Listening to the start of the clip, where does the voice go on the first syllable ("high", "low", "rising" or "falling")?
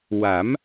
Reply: rising